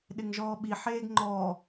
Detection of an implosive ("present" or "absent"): present